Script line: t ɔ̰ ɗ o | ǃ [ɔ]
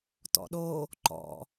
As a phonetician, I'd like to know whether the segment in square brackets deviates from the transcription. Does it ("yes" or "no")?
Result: yes